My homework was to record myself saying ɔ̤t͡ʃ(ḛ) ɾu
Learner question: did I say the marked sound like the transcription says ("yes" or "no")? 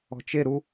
no